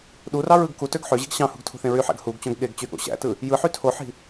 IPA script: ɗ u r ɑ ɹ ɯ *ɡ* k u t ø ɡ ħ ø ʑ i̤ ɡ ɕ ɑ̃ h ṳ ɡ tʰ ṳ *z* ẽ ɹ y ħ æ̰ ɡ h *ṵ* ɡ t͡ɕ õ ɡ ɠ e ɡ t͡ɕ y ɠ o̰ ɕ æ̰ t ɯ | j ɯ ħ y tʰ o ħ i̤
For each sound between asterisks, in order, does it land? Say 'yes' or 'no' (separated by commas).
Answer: yes, no, no